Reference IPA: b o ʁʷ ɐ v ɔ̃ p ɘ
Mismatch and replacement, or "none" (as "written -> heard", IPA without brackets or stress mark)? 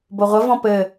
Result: none